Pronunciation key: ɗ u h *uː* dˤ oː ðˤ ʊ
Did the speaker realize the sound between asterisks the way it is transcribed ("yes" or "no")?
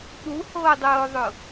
no